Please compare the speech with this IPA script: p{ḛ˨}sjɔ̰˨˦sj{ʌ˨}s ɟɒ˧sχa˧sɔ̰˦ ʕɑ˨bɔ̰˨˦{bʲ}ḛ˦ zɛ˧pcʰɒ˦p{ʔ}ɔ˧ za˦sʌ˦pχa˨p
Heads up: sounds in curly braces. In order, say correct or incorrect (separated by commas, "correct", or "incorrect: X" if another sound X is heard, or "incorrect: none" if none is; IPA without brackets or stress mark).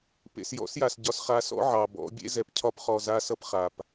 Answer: correct, incorrect: a˨, correct, incorrect: χ